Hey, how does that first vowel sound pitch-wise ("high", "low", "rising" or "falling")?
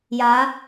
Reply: rising